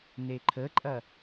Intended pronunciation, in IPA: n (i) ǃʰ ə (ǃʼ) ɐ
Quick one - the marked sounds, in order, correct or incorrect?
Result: incorrect, correct

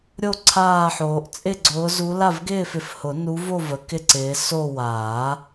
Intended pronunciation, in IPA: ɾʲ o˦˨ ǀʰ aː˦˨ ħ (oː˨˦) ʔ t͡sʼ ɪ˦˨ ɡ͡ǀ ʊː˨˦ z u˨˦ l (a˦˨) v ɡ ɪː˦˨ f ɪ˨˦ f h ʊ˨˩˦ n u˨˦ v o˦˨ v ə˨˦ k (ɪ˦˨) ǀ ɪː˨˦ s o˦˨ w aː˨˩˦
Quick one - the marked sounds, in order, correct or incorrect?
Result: correct, correct, correct

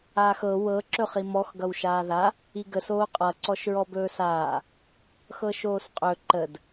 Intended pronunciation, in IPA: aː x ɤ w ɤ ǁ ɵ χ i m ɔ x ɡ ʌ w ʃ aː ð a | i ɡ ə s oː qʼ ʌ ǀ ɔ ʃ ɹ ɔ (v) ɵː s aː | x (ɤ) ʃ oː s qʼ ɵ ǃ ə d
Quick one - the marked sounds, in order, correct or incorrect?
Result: incorrect, correct

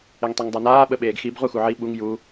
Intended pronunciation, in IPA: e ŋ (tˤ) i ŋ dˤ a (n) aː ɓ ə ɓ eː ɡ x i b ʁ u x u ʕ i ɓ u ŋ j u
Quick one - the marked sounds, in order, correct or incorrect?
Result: correct, correct

